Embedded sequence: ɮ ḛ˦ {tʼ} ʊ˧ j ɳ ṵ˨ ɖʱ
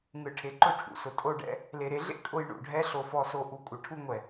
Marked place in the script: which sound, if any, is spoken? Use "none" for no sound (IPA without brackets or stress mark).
kʼ